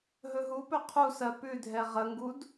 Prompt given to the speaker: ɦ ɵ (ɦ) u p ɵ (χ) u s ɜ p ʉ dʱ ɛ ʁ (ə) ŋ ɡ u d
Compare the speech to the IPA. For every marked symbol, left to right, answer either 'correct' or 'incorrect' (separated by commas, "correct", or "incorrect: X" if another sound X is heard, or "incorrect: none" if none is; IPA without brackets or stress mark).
correct, incorrect: qʰ, correct